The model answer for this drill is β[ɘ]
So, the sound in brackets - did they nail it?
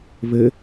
yes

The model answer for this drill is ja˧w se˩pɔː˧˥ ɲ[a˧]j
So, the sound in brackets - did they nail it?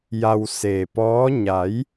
no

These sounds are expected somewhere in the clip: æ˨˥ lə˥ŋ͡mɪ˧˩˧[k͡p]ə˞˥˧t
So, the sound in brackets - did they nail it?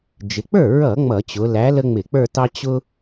yes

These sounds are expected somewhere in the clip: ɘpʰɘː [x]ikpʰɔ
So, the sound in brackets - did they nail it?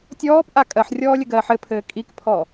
no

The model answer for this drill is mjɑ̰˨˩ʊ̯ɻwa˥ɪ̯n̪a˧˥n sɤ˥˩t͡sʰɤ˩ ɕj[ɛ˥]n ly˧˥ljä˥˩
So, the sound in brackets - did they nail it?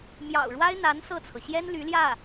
yes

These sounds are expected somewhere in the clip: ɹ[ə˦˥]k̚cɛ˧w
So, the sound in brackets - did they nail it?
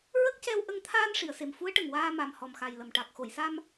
yes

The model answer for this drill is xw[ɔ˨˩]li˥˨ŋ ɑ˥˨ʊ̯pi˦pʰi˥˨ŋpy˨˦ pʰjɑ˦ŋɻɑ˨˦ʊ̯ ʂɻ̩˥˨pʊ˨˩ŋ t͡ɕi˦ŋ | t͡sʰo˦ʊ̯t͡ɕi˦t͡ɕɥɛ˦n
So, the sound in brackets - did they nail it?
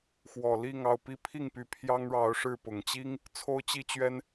yes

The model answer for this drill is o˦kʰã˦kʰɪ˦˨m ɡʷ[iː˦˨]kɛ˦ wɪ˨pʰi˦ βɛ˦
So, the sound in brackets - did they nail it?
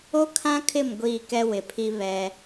yes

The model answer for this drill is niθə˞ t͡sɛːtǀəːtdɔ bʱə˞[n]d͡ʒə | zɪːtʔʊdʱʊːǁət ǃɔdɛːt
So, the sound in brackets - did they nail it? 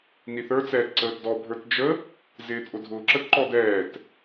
no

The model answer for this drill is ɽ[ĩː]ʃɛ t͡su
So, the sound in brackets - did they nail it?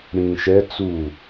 yes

